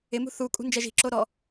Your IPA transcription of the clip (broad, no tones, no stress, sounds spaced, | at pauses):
ɪ m ṳ θ u kʼ ṳ n d͡ʒ ɛ ʒ i̤ ǁ o ɾ ɔ